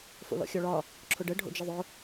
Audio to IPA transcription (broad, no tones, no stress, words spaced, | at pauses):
fo̰lɔ̰xʲɔɭɒ | ǁʰʊɖə ɖʱo̰d͡ʒəðˤʊ